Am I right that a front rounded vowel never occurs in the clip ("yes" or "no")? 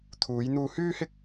no